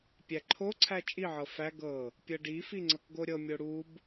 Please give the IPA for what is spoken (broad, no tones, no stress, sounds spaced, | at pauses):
pʲ æ ǃʰ o ǀʰ æ t͡ʃʼ i ʕ ɤ f æ ɡ ɤ | pʲ ɤ ɖ i f i ŋ͡ǀ ɤ k ɡ o ɾʲ ɤ mʲ o ɽ u b